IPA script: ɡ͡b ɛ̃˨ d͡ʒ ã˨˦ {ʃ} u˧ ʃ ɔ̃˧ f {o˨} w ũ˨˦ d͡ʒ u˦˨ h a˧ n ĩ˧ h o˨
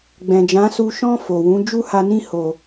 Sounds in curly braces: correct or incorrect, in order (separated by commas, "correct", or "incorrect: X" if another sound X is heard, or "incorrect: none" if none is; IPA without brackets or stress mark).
incorrect: s, correct